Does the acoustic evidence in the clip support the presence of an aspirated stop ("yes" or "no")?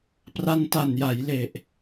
no